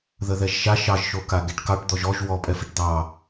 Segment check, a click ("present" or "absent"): absent